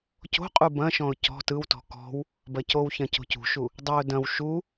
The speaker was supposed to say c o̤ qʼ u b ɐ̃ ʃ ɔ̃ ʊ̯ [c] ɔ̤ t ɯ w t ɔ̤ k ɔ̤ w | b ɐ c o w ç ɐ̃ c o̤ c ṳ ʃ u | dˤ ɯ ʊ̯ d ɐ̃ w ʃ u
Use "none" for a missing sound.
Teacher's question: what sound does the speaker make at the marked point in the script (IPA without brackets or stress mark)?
c